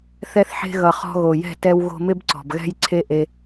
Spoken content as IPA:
θɛ˧θħe̤˧ɣʌ˨ χɔ̤˧ɣo˨jɛ̤˦˨tɛ˧w ɣo̤˧mɪ˦bǀɔ̤˨b ɣɛ̤˦jǀʰe˦ʔe˧

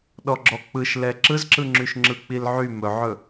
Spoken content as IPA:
ɗɔɡ͡ǁɔk͡pɯʃlɛ ǁɯzǁɯŋ͡ǁyʃ ŋ͡ǁɯk͡pilʕy mɵʕɵ

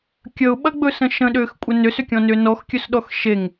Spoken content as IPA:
kʲəʊ̯ɓɐɡ͡bɵsə̃ ʃə̃ɗʏːxkʷʼə nʏsʏkʲɔ̃nʏː nɔxkʲɵsɗɔx ʃeŋ

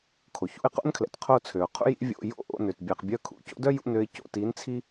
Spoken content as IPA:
kʰo˩çṵ˥˨ɪ̯qo̰˥nkʰlɛ̰˩t qʰo˥˨t͡sʰø˩ʊ̯qʰṵ˥ jḭ˥vʲo̰˧˥˧ jo̰˥˨ʔo̰˥˨nø˩t bʲɛ˩qbʲœ˧˥˧kʰṵ˧˥˧co̰˥ dœ˥jṵ˧˥˧nø˧ɪ̯ co̰˧˥˧ti˨˥nt͡sʰi˥

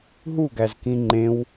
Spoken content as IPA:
ɦuɡæzkĩ ŋ͡ǃẽw

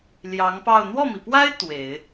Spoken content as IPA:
ljɑ˧˥ŋpɑ˥˧ʊ̯ n̪wɔ˥˩mi˩pwa˥ɪ̯ t̪we˨˩˦ɪ̯

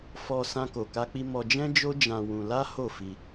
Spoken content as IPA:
fɔ˧ sã˦ko˧ka˦k͡pi˦ mɔ˧d͡ʒɛ̃˦d͡ʒo˦ d͡ʒã˧ wũ˧ la˦ ho˦˨fi˧

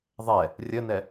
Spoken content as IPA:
ðˤɛ | rʲənɛ

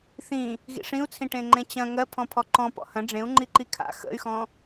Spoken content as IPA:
θĩ | ɣḭʂĩu̯t͡sʰĩ ʈẽŋ͡ǃẽt͡ɕɐ̃ ŋɜpʰɔ̃pʰɔ ǃɔ̃ pɔ̰hɐ̃ ɖ͡ʐẽu̯ ŋ͡ǃiǃikʰa̰ xə̰y̯xɔ̃

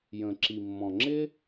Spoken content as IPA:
jə̃˩ǁi˩mːɔ̃˩ŋ͡ǁɪ˥

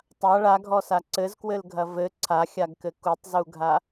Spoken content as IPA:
tˤa ɭaɡʱɔsa ǀɘzkwɘlɡʱɐ vɘ ǀʰaxʲaɡkɘ kutˤzuɡʱa

